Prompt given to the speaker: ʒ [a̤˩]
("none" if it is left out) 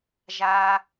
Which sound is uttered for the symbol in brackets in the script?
a˩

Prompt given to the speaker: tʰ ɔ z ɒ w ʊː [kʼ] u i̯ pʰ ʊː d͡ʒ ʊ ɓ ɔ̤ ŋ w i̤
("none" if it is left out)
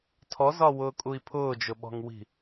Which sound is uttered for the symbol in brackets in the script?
kʼ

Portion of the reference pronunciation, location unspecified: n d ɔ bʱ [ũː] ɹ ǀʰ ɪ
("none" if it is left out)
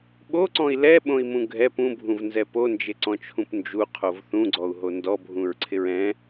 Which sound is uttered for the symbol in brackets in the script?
ũ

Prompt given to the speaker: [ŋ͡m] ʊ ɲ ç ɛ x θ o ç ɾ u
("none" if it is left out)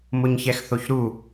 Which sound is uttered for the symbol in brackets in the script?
m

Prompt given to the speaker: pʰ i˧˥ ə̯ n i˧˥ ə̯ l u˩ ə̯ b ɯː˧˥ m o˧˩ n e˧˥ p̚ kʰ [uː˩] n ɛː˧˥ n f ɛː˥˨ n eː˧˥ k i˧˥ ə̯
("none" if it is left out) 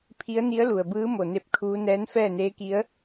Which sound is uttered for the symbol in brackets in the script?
uː˧˥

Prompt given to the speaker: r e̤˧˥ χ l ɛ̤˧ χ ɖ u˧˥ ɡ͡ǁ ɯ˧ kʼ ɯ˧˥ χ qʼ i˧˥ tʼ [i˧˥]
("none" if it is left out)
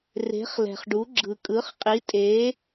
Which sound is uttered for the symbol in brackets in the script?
e˧˥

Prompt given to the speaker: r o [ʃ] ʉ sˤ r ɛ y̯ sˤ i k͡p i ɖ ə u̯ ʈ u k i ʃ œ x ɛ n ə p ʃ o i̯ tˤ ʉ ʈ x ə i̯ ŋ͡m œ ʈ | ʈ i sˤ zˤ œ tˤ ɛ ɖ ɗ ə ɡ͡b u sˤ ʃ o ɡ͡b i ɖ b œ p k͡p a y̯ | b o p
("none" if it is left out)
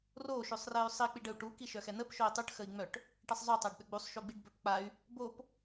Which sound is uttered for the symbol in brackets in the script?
ʃ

